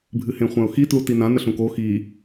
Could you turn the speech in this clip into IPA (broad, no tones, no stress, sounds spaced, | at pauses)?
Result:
bʱ ɨ h ẽ χʷ ã ʊ̯ x i t l u t i n ã n ə ɬ ũ k o x i